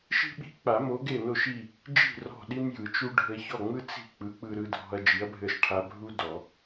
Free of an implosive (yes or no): no